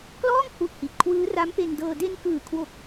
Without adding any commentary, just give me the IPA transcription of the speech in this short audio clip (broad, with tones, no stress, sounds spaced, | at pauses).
k l ɔː˥˩ ŋ h u˥˩ ʔ h i˨˩ t̚ kʰ w ɯː˦˥ r a˦˥ m p e˧ n d ɤː˧ d e˧ n k ɯː˨˩ kʰ w o˨˩ k̚